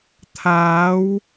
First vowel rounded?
no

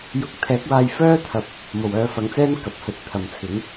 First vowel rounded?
yes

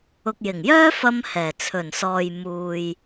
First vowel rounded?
yes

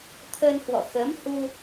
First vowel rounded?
no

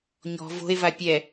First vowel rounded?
yes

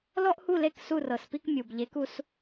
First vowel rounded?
yes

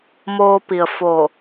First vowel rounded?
yes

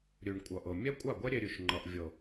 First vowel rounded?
yes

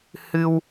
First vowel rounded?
no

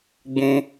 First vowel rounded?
yes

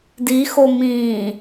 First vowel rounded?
no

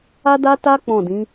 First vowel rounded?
no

